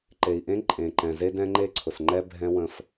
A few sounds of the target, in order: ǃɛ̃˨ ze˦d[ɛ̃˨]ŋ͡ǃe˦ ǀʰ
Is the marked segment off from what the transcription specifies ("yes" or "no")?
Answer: yes